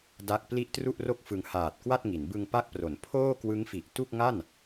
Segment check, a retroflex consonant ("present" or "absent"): absent